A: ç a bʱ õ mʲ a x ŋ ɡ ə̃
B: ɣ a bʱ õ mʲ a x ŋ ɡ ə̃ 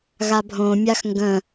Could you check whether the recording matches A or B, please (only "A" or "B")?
B